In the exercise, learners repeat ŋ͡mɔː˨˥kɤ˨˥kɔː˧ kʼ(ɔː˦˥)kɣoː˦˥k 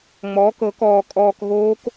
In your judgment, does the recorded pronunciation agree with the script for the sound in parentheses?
no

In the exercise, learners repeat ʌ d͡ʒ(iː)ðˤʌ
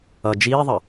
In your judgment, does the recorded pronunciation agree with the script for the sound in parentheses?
yes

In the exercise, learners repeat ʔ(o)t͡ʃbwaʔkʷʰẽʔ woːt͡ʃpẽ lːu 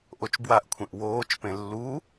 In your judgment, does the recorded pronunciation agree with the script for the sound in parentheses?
yes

